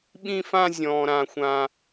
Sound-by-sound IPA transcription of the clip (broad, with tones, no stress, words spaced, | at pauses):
ɓĩ˥˧fã˥˧ zʲɔ̃ː˨ɾã˨xʷã˨